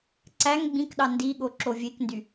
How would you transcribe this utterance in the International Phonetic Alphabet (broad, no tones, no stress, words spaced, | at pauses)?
ǀæŋ ɡ͡bĩkɗɑ ndiɠo ǁovʲekndy